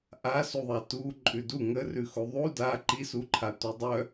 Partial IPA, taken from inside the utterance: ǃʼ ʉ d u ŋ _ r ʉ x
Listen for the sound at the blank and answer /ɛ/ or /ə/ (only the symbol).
ə